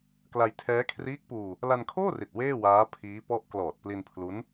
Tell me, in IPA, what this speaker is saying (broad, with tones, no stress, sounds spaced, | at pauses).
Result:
k l a˧ j tʰ ɛː˦˥ kʰ r iː˦˥ k̚ p uː˧ | l a˧ n kʰ oː˥˩ r i˨˩ t̚ w eː˥˩ w aː˦˥ pʰ iː˦˥ p ɔ˦˥ ʔ k l ɔː˨˩ t̚ p l i˧ n pʰ l u˦˥ n